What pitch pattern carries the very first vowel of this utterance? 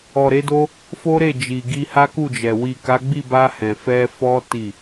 low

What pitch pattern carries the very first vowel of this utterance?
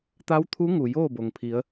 rising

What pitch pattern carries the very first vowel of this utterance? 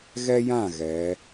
high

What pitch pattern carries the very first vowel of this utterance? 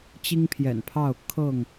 high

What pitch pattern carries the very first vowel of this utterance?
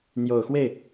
low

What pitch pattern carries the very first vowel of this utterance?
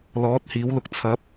rising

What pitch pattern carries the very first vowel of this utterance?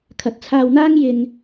low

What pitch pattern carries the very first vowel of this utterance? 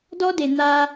high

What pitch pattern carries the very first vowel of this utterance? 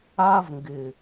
high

